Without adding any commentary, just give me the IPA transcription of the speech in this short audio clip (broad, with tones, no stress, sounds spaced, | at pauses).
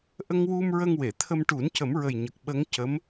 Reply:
ʔ ə˧ ŋ w u˧ m ɹ ə˧ ŋ w e˨˩˨ t̪ʰ ə˧ m ʈ u˨˩˦ n c ə˨˩˦ m ɹ ə˨˩ j ɲ ə˨˩ k̚ ɓ ə˧˥ ŋ c ə˧˥ m